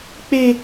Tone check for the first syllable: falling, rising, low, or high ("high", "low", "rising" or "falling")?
high